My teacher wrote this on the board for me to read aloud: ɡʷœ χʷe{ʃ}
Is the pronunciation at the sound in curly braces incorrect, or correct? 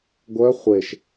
correct